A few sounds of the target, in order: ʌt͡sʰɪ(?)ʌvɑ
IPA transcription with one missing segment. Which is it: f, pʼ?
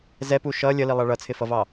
f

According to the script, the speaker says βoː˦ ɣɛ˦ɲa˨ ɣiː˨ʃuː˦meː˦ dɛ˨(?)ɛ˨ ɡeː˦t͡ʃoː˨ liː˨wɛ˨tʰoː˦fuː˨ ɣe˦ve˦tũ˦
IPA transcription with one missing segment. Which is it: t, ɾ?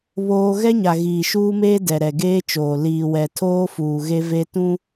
ɾ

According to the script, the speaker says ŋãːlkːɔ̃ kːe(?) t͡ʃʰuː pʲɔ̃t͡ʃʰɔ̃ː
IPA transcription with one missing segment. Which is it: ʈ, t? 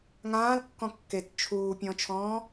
t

